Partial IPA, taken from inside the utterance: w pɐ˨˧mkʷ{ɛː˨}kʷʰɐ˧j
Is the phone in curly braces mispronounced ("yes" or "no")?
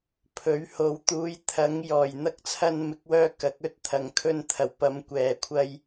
no